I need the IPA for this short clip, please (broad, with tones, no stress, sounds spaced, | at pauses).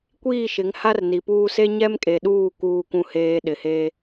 kʷ iː˦˨ ʃ ɪ˨˦ ŋ h a˦ r n i˨ p uː˦ s e˦ ɲ ɛ˦ m kʼ e˨ ɗ uː˦˨ k uː˨ kʷ ũ˨ h eː˨ ɗ ɪ˨ h eː˦